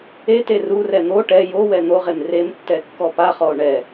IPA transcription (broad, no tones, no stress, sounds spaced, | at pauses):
e t e r u r ɛ n̪ o ʈ ɛ j o w ɛ n̪ o ʁ e m r e m tː ɛ kː ɔ p a χ ɔ o̯ ɳ ɛ